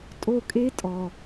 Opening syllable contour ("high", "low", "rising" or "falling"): high